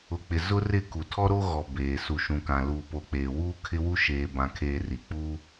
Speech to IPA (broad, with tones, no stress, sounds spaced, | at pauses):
ʊ˨ k͡p ɪ˨ z ʊ˦ r ɪ˦˨ k u˨ tʰ ɔ˦ ɾ o˦ ɣ ɔ˨ b eː˨ s u˨ ʃ ũ˨ k ã˨ l uː˨ p o˨ k͡p eː˨ w uː˦ kʰ ɪ˦ w u˦ ʃ eː˨ b ã˨ kʰ eː˨ r i˨ k͡p uː˦